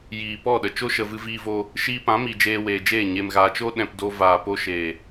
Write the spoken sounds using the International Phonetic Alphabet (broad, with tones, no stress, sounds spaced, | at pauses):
j iː˨ p ɔ˦˨ ɗ ə˨ t͡ʃ o˦ ʃ ə˨ v ɨ˧ v iː˧ v oː˧ | ʃ iː˧ p ã˨˦ m i˨ d͡ʒ eː˧ w eː˨ d͡ʒ eː˦˨ ɲ e˨ m ɣ aː˨ t͡ʃ o˦ ɗ ɛ̃˨ p d o˧ v aː˨ p o˧ ʃ eː˨